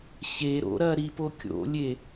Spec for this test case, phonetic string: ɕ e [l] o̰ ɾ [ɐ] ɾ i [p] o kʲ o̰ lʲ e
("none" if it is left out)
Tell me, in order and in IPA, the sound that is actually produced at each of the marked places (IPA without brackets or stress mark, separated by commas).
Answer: ɾ, ɐ, p